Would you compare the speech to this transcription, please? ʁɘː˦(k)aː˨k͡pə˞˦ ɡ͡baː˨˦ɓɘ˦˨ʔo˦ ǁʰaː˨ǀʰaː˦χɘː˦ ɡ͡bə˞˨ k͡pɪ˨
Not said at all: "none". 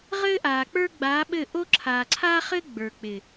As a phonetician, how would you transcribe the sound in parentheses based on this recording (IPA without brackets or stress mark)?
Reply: ʔ